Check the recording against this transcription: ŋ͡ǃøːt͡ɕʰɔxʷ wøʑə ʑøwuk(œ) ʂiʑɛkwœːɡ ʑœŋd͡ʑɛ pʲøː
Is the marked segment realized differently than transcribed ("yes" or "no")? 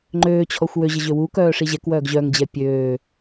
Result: yes